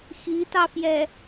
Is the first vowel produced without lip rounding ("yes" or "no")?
yes